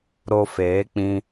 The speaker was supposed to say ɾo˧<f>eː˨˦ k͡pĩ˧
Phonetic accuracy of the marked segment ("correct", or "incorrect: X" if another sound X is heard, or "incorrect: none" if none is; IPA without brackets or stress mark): correct